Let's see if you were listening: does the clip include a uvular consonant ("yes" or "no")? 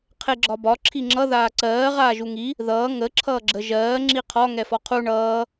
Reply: yes